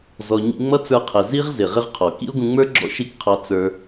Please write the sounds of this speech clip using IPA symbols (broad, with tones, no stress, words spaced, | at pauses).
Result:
zɔ˧ ɲḭ˧ŋ͡mʌ˦t͡sə˞˧qʰɛ˨ zi˦ʁzɪ˨ ʁɪ˦ʁqʰɔ˨ kḭ˦o̯ɡũ˧ŋ͡mə˞˦ ɡ͡ǁɔ̰˦ʃi˦˨kqʰɑ˧ t͡sə˞˦